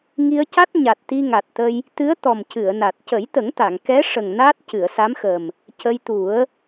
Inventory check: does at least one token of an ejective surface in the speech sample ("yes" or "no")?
no